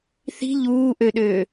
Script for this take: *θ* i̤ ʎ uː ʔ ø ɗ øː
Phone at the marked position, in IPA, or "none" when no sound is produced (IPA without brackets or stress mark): θ